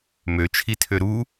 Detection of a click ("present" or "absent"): absent